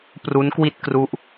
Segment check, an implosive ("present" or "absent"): absent